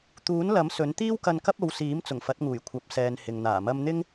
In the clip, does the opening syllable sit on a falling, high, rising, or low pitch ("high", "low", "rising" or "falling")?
rising